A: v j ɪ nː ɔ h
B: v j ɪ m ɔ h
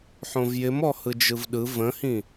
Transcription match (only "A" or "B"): B